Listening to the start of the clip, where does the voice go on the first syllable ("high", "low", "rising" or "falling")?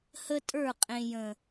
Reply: high